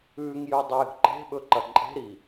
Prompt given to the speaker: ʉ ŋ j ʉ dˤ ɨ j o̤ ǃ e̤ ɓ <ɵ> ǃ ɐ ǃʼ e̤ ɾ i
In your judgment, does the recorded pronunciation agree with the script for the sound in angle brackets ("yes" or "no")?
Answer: yes